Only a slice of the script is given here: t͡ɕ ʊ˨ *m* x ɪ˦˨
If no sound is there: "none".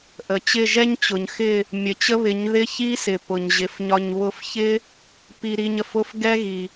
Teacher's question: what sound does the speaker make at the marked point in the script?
ɲ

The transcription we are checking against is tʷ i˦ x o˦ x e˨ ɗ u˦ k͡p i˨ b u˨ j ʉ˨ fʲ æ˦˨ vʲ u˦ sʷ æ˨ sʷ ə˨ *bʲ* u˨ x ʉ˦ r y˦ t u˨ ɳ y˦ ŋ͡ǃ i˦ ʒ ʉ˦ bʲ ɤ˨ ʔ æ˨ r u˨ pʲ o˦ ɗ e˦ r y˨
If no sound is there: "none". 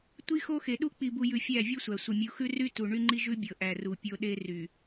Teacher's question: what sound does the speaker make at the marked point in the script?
mʲ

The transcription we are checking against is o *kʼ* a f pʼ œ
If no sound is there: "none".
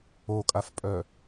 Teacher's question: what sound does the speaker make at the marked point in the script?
kʼ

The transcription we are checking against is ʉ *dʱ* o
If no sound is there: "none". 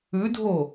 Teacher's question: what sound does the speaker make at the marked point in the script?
dʱ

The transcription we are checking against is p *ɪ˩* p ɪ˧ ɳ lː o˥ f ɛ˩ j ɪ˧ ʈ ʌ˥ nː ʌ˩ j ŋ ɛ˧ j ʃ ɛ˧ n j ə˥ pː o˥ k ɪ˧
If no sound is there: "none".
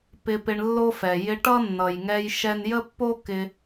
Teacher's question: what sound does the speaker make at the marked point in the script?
ɪ˧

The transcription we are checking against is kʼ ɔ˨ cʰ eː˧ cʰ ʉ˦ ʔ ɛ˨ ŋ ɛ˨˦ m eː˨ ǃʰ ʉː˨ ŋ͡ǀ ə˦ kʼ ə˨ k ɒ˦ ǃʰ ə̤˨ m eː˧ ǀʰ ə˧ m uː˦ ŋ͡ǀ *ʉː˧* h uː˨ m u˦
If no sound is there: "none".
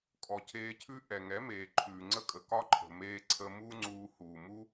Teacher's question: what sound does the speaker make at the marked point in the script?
uː˧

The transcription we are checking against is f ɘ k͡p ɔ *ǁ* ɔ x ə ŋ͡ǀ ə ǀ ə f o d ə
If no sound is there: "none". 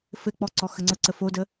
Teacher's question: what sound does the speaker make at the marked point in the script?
ǀ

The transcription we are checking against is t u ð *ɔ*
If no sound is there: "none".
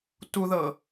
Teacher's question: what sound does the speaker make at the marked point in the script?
ɤ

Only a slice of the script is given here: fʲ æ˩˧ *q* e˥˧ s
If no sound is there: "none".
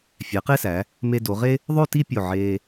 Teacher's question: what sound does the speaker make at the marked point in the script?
q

